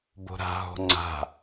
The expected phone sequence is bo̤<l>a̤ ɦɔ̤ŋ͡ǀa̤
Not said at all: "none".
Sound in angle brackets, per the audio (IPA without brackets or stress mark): ɾ